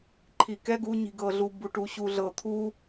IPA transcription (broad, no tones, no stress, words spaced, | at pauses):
ǃʰikɛ ɡuɲi̤ɡɤɮu buʈuɕuɮɤ t̪ʰu